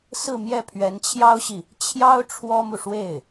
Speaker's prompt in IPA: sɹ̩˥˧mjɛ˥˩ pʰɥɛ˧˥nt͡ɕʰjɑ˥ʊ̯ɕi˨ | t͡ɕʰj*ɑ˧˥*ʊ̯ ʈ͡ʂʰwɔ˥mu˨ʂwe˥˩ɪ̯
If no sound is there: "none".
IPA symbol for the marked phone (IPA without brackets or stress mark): ɑ˥